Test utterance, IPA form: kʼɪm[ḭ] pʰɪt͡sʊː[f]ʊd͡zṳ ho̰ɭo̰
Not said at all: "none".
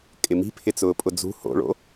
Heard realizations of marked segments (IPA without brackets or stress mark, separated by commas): i̤, pʼ